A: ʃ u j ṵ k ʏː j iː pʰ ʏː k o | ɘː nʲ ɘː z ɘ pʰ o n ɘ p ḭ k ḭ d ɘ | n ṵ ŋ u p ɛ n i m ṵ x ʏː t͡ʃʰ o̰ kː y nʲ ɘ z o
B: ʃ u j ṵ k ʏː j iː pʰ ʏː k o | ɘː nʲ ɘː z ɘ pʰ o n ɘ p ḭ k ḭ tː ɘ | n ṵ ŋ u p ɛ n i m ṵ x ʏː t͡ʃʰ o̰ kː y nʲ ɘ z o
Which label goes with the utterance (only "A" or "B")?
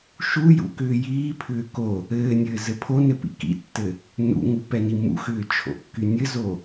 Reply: B